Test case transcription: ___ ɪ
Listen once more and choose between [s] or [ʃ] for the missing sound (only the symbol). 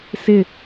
s